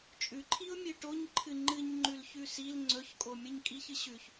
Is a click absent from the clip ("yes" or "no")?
no